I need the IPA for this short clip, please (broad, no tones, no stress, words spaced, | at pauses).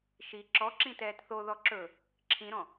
ʃi ǁɔǁĩ tɛːtθoðɔ ǁɵ | ǁʰĩɾɔ̃